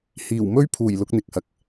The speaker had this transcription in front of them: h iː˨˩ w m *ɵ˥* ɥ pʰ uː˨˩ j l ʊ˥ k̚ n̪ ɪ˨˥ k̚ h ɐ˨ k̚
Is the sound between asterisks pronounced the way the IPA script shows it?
yes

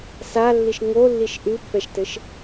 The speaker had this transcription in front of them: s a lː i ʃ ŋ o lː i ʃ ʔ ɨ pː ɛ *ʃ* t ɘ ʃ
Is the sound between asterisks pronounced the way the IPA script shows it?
yes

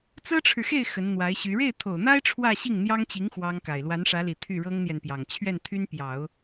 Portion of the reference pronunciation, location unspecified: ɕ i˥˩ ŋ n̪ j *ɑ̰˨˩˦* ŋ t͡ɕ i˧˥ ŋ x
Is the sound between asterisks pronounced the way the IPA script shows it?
no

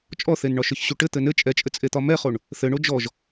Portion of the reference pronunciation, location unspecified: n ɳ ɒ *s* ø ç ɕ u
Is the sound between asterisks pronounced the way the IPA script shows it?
no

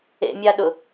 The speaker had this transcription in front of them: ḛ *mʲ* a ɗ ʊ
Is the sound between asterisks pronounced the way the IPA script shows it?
yes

